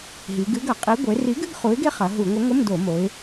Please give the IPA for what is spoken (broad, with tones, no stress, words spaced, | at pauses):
ɦi˩˧ɡɨ˨˥ɡɐ˧˩˧qʼi˨˥ ɡʷe˩˧ri˨˥ɡɨ˧˥˧ɡ χu˨˥ɪ̯ɡe˦˥χɐ˩˧ ɦu˧˩˧ŋʷɨ˨˥ ŋʷɘ˧˥˧mdo˧˩˧mo˩˧ɪ̯